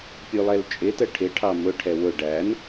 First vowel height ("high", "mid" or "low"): high